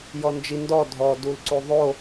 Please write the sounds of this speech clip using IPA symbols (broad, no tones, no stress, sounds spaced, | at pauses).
j ɔ n d͡ʒ i n d ɔ dʱ ɔ d u l ǀ u ðˤ o